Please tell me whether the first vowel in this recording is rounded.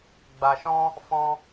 no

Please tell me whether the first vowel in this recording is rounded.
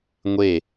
no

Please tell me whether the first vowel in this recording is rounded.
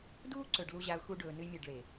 yes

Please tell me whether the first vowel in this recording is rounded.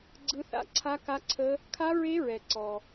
no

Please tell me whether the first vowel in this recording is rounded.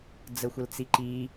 no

